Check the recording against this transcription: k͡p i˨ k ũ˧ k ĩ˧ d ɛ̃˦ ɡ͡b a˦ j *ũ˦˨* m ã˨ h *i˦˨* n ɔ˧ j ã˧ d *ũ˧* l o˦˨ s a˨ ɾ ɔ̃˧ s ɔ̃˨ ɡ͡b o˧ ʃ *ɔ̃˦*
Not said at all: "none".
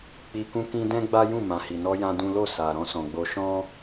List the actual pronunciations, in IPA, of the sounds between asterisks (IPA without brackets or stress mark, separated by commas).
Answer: ũ˦˨, i˨, ũ˦, ɔ̃˦